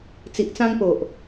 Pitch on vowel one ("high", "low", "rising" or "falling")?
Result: low